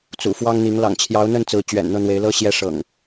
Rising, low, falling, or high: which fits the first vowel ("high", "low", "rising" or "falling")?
low